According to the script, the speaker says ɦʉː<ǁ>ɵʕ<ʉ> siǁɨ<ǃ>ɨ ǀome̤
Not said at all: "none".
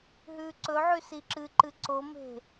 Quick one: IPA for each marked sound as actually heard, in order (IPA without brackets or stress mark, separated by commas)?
ǀ, ʉ, ǃ